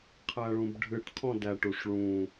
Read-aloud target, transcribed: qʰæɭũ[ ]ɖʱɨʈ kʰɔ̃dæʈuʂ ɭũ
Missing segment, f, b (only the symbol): b